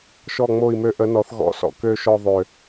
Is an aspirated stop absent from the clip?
yes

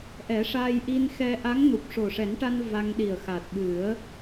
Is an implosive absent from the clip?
no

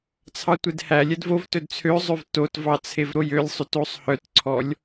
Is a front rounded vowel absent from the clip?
no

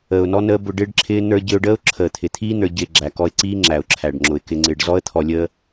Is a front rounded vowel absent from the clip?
yes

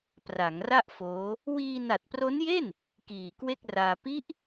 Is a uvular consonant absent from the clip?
yes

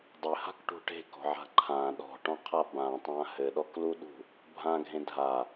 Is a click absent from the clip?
no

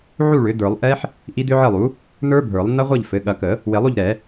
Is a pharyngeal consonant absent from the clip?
no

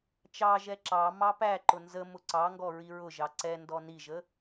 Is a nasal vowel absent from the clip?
yes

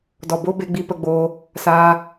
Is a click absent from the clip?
yes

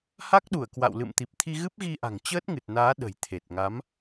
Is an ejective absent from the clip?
yes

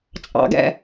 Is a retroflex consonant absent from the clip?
yes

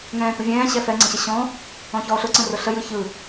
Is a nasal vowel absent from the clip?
no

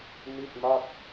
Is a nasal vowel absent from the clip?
yes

